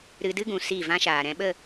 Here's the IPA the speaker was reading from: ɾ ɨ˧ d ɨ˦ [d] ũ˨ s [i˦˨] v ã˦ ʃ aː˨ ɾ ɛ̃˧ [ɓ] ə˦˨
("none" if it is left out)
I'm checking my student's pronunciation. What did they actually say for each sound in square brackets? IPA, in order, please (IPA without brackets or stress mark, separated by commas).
ɡ, i˦˨, ɓ